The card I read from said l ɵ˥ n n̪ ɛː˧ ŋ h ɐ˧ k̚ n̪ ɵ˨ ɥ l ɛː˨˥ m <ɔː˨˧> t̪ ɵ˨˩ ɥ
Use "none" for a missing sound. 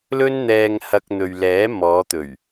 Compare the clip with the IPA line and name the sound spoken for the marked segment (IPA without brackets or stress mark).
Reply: ɔː˨˧